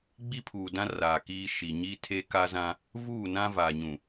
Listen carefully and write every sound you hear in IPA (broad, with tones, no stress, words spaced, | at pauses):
ɡ͡bi˦pʰuː˨dã˦ raː˨kiː˦ʃi˨ ɲi˦tʰe˦ka˦zã˦ | vuː˦˨nã˦ vaː˨ɲũ˨